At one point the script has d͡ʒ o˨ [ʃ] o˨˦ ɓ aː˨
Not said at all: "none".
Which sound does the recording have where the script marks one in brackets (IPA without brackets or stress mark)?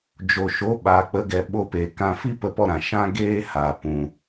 ʃ